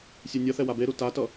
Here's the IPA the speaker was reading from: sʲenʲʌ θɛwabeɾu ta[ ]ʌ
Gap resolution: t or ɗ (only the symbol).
t